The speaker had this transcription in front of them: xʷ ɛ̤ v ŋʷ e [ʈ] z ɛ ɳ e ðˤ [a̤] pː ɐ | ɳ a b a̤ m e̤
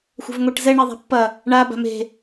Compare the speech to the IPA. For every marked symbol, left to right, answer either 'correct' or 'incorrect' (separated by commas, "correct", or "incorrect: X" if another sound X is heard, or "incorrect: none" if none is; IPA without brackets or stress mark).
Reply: correct, correct